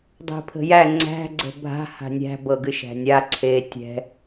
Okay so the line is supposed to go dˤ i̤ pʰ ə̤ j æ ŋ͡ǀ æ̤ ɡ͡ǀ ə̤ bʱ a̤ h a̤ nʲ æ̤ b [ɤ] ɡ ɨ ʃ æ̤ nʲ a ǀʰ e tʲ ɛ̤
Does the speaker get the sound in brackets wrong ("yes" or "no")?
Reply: no